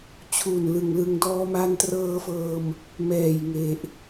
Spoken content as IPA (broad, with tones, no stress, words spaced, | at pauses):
t͡ɕʰu˨˩nlɯ˨˩ŋlɯ˧ŋ dɔː˧ma˧ntrɤː˧fɤː˧m | mɛː˨˩jŋe˨˩ʔ